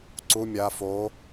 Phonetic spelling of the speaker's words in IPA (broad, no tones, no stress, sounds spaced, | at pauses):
ǀ u mʲ a f o